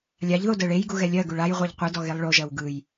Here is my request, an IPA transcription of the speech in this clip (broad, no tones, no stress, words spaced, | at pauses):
lʲaʎðo dɜɭejɡu ɣɛlʲɜɡuɭ aj ʁʷɛʎqʷɯdɔ ɣelˠɭoʒɜw ɡɯj